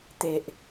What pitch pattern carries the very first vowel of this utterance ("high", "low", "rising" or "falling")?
low